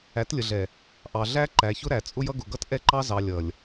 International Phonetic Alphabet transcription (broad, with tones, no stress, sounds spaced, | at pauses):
æ˨˦ t lʲ ə˨ ɮ ɛ˨ | ʔ ɑ˨ ɮ æ˦ ǃ æ˨ ç ʊ˦ ɾ æ˨ t͡sʼ ʊ˦ j ʌ˦ ɡ ʊ˨ ɡ ʌ˦ t ʔ ɛ˦ ǃ ɑ˦ z ɑ˨ lʲ ʌ˨ lʲ